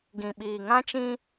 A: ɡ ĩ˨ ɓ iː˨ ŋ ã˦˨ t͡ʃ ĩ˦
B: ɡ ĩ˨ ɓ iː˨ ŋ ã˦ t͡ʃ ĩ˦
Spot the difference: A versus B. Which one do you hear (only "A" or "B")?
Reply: B